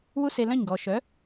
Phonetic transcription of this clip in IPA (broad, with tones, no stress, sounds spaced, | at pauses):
w u˥ s e˧ l œ̃˥˩ ɲ ɡ ɔ˩ ʃ œ˩˥